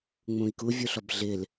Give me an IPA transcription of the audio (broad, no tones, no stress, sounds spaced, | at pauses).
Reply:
ŋ͡m ũ i̯ k u vʲ u ɬ ɔ b ɮ ɪ l